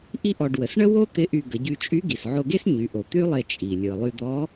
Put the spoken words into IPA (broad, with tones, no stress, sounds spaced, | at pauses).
ʔ i˥ ʔ ɔ˧ ɖ w ə˩˧ s ɳ ə˥ w o˥ t̪ ɪ˧˥ ʔ y˧ ɡ ə˩˧ ɟ y˧ t͡ʃʼ y˧˥ ɡ i˩ s ʕ o˧ ɡ e˥ s ɲ y˩˧ ʔ o˩ t̪ y˥ lˠ e˧ t͡ʃʼ i˩ lʲ ɯ˩ lˠ y˧ d̪ ɔ˧˥